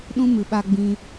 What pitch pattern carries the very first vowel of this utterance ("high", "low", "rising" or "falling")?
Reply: high